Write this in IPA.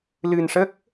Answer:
l ɨ˧ n ʂ ə˦˥ k̚

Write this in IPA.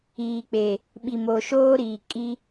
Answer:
iː˨ k͡p e˨ | ɓ i˨ m o˨ ʃ oː˦ ɾ iː˨ kʼ i˦

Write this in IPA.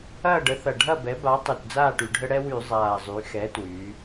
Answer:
ɐː˥˩ ɖ ə˩˥ θ ɐ˨˩ ɖʱ ɐ˥˩ b ɛ˩˥ b a˩˥ tˤ y˨˩ t d͡z aː˥˩ ʈ y˩˧ ɖʱ ə˦ ɽ ɛ˦ w y˧˩˧ zˤ aː˨˩ zˤ y˩˧ x ɛ˩˥ t w y˩˧

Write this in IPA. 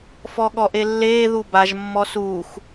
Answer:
f ɔ ɠ ɔ ʔ e lː eː ð u b a ʒ mː ɔ s uː x

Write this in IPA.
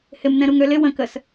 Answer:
h ɪ m n ɛ̃ ɾ u ŋ ø l ɪ w ə̃ k ə s

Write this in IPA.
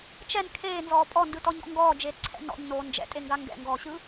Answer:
t͡ʃ ɛ n kʰ eː n z ɔː pʼ ɔ n d ɯ t ɔ ɲ ɔ̰ ŋ ɡ ɔː d͡ʒ eː t ǀʰ ɛ̰ n ɔ̰ ɲ n oː n d͡ʒ ɛ̰ tʼ e ŋ ɡ a ŋ ɡ ɛ̰ ŋ ɡ ɔː ɕ ɯ

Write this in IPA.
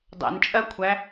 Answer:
dˤ ɛ̰ n t͡ʃʼ ɜ kʷʰ æ

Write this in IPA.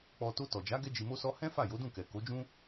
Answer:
k͡p ɔ˧ t o˧ t ɔ˨ d͡ʒ a˨˦ ɡ ɛ˦ d͡ʒ i˧ m o˦ s ɔ˦ h ɛ̃˦ f a˦˨ j o˨˦ d ũ˦˨ k ɛ˨ k o˨˦ d͡ʒ ũ˦

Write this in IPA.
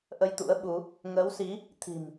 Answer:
ʔ ə˧ j t̪ ṵ˧˥ ə̯ ɓ u˨˦ | ŋ əː˨˦ w s i˨˦ | t̪ʰ i̤˨˩ m

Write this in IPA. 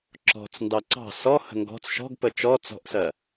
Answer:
ǁ ɔ̤ t͡s n d ɑ ǀ ɑ̤ s ɔ h ə̤ ŋ ɡ ɔ̤ t͡s ʃ ɔ̤ ɡ p ə t͡ʃ ɔ t͡s ɔ̤ ʔ s ɜ

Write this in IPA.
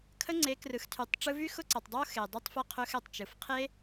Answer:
kʰ ə˦ ŋ͡ǀ e˨˦ k r ɯ˨ x tʰ y˨˦ tˤ ʈ͡ʂ ɯ˧ v y˦ x ʊ˦ ǀ ə˨ tˤ dˤ o˦ x e˨ dˤ y˧ tˤ f ɛ˧ qʰ ɵ˧ x ɛ˨ tˤ t͡ʃ ɯ˨ f qʰ e˦

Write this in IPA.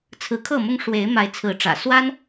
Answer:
t͡sʰ ɹ̩˨˦ kʰ ɤ˥˨ m ʊ˦ ŋ ʂ w e˨˦ ɪ̯ m a˨˦ ɪ̯ t͡sʰ ɹ̩˨˦ ʈ͡ʂ ä̰˨˩ s w a˦ n

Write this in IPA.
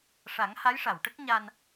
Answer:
ʂ a˨˩˦ ŋ h a˧˥ j ʂ a˨˩˨ w ʈ ə˦˥ k̚ ɲ a˧ n

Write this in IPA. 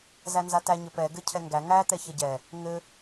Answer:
z æ n z a t æ ɲ ɘ p ɛ ɡ ɘ cʰ ɛ ŋ ɡ æ ŋ æ t̪ ɛ ç ɛ ɟ ɛ | ŋ ɘ

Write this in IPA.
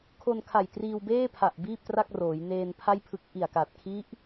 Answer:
kʰ o˧ n kʰ a˨˩ j t r iː˧ w b eː˥˩ pʰ a˨˩ ʔ b iː˥˩ p̚ t r a˥˩ k̚ r oː˩˦ j n eː˧ n pʰ a˥˩ j pʰ ɯ˦˥ k̚ ʔ i˨˩ a̯ k a˨˩ t̚ kʰ i˦˥ ʔ

